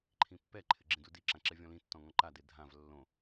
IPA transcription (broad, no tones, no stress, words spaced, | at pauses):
ǃʰĩpːɛǃʰɪ ɡ͡ǁĩdudiǁã ǁɛvʲɔ̃lĩtːɔ̃ ŋɔ̃ǃade dʱãv lːõ